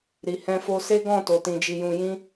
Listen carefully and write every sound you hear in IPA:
ɾ i˨ h ɛ̃˧ f o˧ s e˦ ɡ ɔ̃˦˨ t o˨ t ĩ˨ d͡ʒ i˨ j ũ˨ j ĩ˧

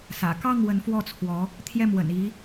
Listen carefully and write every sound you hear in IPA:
s ä̰˨˩ k ɑ˥˩ ŋ w ə˧˥ n f w ɔ˥˩ t͡sʰ w ɔ˧˥ | t̪ʰ j ɛ˥˩ m w ə̰˨˩ n i˧˥

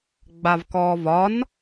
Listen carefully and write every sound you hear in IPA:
ɡ͡b a v k ɔː v ɒ n

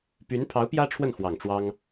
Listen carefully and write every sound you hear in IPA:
p y˧˥ n pʰ ɑ˧˥ ʊ̯ p j ä˥ ʈ͡ʂʰ w ə˥˩ n x w ɑ˨˩ ŋ ʈ͡ʂ w ɑ˥ ŋ

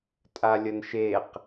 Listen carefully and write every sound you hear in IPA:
tʼ a lʲ ə n ʃ e q

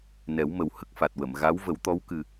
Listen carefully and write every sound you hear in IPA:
n ɛ˨˩˦ w m ə˨˩ w h ə˦˥ k̚ f a˨˩ t̚ w ə˨˩˨ m ɣ a˧˥ w v ə˨˩˦ w t̪ ɔ˧˥ w k ɨ˨˩

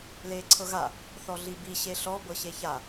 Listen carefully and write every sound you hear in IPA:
l eː ǀʰ ɤ ɣ a | θ ɔ ɮ i b i ɕ e ɬ ɔ b ɤ ɕ e ç a

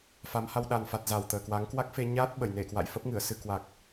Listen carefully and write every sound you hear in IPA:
f a˨˦ m h a˧ w ɗ a˨˩ n f a˨˩ t̚ z a˨˩ w t̪ əː˨˩ k w a˨˦ ŋ k w a˦˥ k̚ f e˧ ɲ aː˦˥ t̚ ɓ ə˧˩ j n e˧˩ k w a̰˧˨ j f ə˦˥ p̚ ŋ ɨ˧˩ ə̯ s ɨ˧ k w a˨˩ k̚

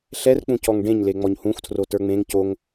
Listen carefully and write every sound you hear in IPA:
ɬ ɛ r k͡p ũ c ɔ ŋ ɖ ẽ ɲ l e ŋ͡m ɔ ɲ h ũ xʷ tʰ r o t ə˞ ŋ͡m ẽ ŋ c o ŋ

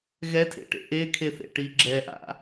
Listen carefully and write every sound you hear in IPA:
ɣ ɛ tʰ ḛ ʈ ḛ ʔ e kʰ e θ ḛ ʈ i ɡ͡ǁ ɛ ʔ a̰

